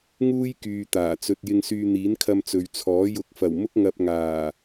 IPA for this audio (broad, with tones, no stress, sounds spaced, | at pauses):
ŋ uː˥ j k yː˨ t̪ aː˨˩ t͡s ɵ˧ t̚ j ɪ˧ ŋ s yː˧ n̪ iː˨˥ n kʰ ɐ˧ m t͡s ɵ˨ ɥ t͡sʰ ɔː˨˥ j ʊ˨˥ k̚ f ɐ˨˩ w m ʊ˥ k̚ ŋ ɐ˧ p̚ ŋ aː˨˩